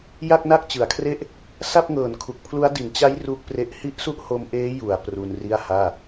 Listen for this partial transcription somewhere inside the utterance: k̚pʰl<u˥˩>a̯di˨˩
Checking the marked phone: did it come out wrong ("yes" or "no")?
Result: yes